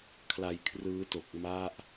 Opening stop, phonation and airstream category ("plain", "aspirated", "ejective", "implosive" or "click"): aspirated